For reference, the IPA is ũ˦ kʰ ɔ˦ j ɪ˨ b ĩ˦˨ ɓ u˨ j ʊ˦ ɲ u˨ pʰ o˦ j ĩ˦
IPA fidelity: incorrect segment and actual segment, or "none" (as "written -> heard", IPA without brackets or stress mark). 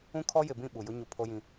none